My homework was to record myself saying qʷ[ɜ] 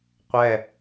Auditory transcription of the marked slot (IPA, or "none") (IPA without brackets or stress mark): ɛ